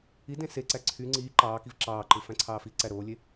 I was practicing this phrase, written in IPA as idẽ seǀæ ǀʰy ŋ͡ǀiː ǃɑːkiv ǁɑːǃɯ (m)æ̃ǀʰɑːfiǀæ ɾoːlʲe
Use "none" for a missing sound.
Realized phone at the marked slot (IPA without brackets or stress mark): f